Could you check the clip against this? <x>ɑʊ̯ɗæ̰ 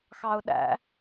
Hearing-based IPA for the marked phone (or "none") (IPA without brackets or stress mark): x